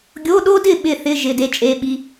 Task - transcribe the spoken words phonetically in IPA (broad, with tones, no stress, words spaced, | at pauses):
ɡʲo˧˥˧ɗo˥dɪ˥˨ ɓɪ˥˨θɪ˧˥˧ ʒɪ˧˥˧de˥t͡ʃʼe˧˥˧ɓi˧˥˧